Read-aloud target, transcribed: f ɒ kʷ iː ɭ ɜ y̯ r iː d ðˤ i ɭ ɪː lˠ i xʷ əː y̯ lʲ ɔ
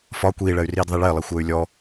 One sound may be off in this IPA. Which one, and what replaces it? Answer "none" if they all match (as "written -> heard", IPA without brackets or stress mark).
none